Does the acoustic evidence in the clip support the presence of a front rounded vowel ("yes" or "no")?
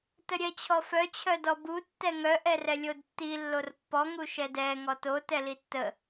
yes